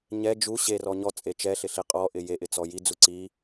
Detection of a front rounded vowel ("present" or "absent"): absent